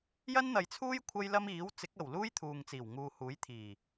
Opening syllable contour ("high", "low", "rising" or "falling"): high